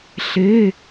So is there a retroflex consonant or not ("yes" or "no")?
no